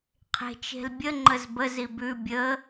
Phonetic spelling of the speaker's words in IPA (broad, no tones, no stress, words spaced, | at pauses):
qʰe̤t͡ʃe̤lbʲə ŋ͡ǃəzbə zibʉ bʲə